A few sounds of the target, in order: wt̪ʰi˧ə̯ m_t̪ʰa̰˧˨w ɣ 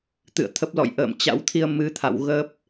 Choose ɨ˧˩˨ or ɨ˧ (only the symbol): ɨ˧